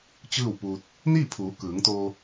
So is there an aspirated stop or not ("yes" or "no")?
yes